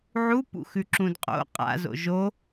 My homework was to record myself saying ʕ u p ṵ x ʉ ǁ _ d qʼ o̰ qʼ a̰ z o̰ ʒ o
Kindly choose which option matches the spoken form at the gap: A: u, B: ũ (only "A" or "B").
B